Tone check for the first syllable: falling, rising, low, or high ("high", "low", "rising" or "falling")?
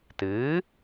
rising